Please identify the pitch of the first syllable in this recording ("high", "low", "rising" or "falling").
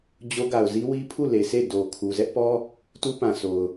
high